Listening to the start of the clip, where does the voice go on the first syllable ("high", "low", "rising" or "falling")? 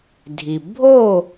low